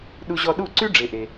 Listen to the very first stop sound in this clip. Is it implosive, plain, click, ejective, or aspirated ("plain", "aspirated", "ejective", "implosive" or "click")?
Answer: implosive